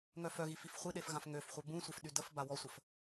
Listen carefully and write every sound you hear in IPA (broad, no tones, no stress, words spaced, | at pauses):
ŋœfœɣi fifχʷiɗef ɣãfŋøfχʷœ bũsʷef ɗydəfba wɔsʷəf